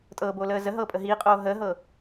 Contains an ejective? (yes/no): yes